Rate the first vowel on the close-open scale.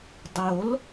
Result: mid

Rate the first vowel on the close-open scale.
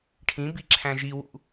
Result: close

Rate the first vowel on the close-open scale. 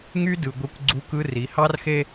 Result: close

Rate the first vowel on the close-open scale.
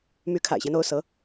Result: close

